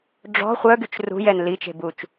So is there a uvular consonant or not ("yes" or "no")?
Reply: yes